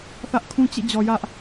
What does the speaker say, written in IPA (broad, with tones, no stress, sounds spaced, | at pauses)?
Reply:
θ ä˦ ʔ kʰ ũ˦ t͡ɕ ḭ˦˨ d͡ʑ ɔ˨ j ä˦ ʔ